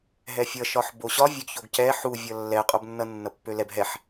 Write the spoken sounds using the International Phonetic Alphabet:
ɦ ɛ fʲ ʌ ʃ ɒ ħ b o ɕ ɒ vʲ ø ɡ ç o ɡ c ɛ ħ u vʲ ʌ lː ɛ qʼ o b nː ʌ nː ʌ pː ø l ɛ b ɦ ɛ ħ

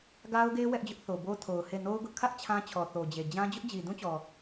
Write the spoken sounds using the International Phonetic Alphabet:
ɡ a˦ ʊ̯ ɡ e˦ w ɛ˦ ʔ d͡ʑ ʊ˦ ʔ θ o˨ b o˦ tʰ o˨ ʊ̯ h e˦˨ n o˦ ʊ̯ ɡ ʊ˦ ʔ kʰ ä˦ ʔ t͡ɕʰ ã˦ t͡ɕʰ ɔ˨ θ o˨ d͡ʑ e˨ d͡ʑ ã˦ d͡ʑ ʊ˦ ʔ d͡ʑ i˨ d ũ˦ t͡ɕ ɔ˨

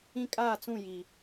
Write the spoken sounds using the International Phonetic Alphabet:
ĩ˦ kʼ aː˦˨ t͡s ũ˦˨ j i˨

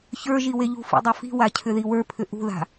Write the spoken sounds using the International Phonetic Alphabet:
ç ə˞ ʒ i w e ʎ ṳ f ḭ dˤ ɵ f i̤ w a cʰ ʏ ð i w ə˞ pʰ ʏ ʔ ṳ ð a̤

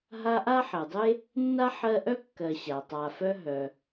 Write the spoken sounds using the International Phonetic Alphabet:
ɦ a˦ ʔ a˥ ħ ɜ˩ dˤ e˥ | nː a˥ ħ ɜ˦ ʔ œ˥ kː ɜ˨ ɕ a˩ tˤ a˨ f œ˦ ɦ œ˨

